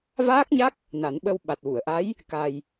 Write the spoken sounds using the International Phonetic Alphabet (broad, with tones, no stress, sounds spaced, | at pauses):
v aː˦˥ k̚ ɲ a˦˥ k̚ | n a˨˩˦ n ɓ ə˧ w ɓ a˨˩ t̚ w u˨˩˨ ə̯ ʔ a˧˥ j | k a˧ j